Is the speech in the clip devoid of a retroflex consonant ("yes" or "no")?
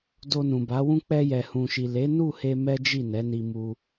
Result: yes